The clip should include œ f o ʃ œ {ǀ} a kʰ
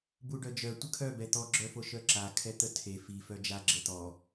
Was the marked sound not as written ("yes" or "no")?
yes